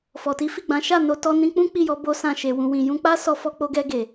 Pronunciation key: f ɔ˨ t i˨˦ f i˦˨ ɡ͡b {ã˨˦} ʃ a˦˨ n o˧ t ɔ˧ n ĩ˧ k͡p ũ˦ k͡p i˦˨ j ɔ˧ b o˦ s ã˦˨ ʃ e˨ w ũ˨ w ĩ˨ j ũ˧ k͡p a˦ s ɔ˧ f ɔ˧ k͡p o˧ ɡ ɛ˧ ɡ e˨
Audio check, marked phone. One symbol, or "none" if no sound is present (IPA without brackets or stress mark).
ã˨˦